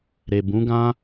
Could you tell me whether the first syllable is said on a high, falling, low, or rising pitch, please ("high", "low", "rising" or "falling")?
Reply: low